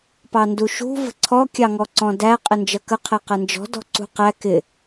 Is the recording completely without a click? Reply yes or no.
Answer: no